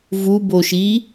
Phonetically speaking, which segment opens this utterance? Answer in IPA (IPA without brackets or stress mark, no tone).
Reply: v